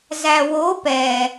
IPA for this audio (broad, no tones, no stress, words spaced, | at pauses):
zæwo pɛ